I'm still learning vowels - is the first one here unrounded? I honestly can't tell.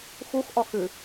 no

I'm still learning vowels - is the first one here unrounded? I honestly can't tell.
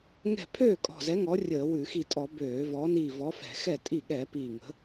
yes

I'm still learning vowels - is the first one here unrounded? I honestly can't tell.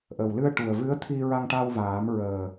yes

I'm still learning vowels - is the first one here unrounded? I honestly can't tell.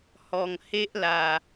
no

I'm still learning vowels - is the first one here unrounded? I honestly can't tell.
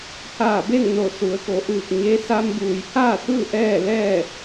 yes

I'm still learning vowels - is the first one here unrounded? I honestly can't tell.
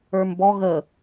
yes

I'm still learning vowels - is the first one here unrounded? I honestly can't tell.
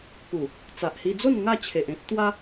no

